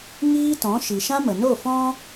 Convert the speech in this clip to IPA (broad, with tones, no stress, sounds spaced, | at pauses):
ŋ iː˦ t ɔ̃˨˦ ʃ i˨ ʃ ã˦ m ə˨ n o˦˨ f ɔ̃˦